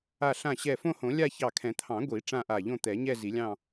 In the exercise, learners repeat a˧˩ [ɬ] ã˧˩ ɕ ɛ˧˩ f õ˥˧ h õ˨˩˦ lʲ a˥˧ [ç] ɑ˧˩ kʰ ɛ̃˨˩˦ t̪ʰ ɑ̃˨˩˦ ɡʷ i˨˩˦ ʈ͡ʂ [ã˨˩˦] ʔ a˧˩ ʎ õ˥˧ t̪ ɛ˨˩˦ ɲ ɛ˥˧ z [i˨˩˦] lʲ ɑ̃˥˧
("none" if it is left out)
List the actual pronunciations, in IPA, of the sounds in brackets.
ɬ, ç, ã˥˧, i˨˩˦

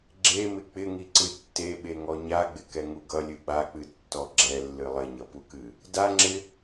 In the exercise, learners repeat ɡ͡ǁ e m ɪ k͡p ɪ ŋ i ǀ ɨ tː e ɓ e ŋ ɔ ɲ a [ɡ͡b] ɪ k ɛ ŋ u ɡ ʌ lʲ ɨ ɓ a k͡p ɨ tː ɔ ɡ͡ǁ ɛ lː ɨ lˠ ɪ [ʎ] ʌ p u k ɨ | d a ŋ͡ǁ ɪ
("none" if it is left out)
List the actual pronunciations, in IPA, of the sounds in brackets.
ɡ͡b, ɲ

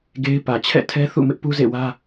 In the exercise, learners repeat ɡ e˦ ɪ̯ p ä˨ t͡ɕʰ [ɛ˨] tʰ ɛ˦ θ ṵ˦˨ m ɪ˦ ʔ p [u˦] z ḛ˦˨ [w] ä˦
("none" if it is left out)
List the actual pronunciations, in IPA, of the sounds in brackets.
ɛ̰˦˨, u˦, w

